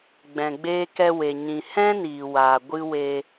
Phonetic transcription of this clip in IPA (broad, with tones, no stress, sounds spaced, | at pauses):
ɡ͡b ɛ̃˨ ɡ͡b eː˧ k ɛ˧ w e˨ ɲ ĩ˨ h ɛ̃˦ n iː˨ w aː˨ ɡʷ ɨ˧ w eː˧